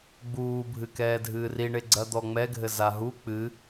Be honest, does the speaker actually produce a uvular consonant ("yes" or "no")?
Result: no